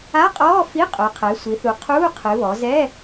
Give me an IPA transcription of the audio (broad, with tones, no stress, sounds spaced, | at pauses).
a˧˥˧ qʼ ɔː˧˥˧ f i˧˥˧ qʼ o˩˧ qʰ ɛ˩˧ sʷ i˩˧ θ u˩˧ qʰ uː˧˥˧ qʰ ɨ˩˧ β ɔ˩˧ z ɛ˧˥˧